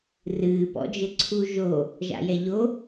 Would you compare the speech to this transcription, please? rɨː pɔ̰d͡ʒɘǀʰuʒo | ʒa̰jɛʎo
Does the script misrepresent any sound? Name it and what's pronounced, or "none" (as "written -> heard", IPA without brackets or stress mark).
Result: none